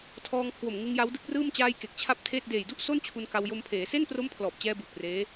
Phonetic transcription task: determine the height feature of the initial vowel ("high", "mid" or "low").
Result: mid